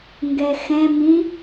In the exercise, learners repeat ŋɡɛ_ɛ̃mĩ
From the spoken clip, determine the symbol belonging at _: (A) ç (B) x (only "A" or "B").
B